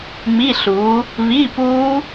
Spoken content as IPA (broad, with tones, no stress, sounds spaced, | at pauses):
m i˧˥˧ ɬ uː˨˦ | β i˧˥˧ p uː˦˥